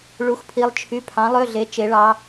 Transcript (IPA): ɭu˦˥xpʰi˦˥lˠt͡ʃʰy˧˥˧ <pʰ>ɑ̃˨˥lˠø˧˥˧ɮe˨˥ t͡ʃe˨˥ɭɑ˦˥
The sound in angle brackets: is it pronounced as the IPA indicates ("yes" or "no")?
yes